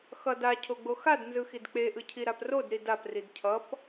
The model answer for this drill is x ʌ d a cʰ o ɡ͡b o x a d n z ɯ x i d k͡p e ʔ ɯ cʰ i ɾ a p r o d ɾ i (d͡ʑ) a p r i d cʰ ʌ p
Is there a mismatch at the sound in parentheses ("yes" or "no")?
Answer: yes